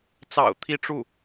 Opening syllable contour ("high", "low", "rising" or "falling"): low